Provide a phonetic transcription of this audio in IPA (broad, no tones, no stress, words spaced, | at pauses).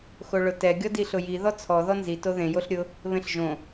xoɭʊtɛ ɡʲɔdiɬʊji ðɔt͡sʰɔ ðɔnzi toðẽ joɬɾʲʊ | βẽɬʒõ